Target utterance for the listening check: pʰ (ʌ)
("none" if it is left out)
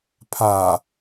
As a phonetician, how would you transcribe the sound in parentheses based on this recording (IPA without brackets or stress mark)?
a